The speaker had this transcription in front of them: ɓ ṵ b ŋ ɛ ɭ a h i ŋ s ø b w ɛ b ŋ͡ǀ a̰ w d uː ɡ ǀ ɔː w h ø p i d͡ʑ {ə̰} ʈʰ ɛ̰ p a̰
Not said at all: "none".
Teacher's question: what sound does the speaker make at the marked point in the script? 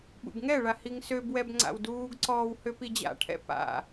a̰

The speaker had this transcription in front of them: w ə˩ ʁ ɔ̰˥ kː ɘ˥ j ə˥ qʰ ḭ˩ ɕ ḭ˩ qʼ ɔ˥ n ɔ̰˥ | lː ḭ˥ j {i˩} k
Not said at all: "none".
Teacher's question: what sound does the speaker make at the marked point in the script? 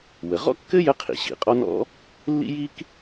i˥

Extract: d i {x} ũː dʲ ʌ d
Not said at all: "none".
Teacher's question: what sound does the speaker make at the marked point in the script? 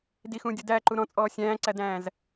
x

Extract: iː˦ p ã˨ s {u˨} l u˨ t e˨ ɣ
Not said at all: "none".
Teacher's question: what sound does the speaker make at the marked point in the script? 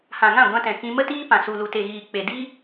u˨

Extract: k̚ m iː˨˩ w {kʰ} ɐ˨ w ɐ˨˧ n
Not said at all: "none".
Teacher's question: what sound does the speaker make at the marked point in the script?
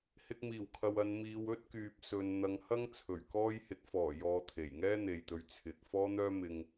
kʰ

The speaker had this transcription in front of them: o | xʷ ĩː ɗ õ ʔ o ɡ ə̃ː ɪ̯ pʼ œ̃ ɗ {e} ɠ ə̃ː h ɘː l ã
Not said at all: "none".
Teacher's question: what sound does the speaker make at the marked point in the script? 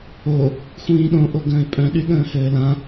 y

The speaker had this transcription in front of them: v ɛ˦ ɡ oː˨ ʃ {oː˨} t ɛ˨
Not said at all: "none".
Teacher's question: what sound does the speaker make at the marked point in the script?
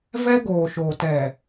oː˨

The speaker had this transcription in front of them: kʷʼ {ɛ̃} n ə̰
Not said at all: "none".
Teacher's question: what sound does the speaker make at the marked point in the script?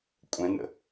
ɛ̃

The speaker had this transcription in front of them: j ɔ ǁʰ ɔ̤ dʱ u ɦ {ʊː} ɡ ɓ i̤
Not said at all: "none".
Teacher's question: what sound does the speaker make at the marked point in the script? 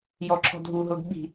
ʊː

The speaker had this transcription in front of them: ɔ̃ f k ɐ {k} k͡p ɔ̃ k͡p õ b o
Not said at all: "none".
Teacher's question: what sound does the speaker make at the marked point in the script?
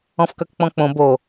k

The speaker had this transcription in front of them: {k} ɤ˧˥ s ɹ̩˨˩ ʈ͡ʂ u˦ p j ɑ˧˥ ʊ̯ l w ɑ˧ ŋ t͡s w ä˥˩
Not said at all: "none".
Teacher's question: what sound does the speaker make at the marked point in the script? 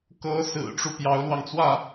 k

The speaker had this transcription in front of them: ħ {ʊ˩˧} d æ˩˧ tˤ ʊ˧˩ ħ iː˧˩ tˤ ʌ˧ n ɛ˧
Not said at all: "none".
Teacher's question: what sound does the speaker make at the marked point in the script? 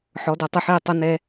ɔ˩˧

